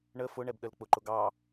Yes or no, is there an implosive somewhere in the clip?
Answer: yes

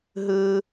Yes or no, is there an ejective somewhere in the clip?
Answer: no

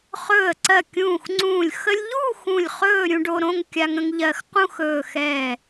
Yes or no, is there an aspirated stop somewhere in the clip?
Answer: no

